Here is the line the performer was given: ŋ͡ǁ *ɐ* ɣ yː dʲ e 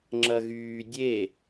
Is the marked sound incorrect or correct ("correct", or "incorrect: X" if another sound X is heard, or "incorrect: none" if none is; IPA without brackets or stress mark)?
correct